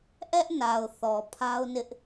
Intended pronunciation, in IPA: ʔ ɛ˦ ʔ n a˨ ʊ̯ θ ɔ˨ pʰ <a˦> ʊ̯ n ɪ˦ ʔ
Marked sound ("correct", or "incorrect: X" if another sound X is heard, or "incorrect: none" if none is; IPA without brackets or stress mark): correct